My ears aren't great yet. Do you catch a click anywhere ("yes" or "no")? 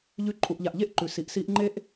yes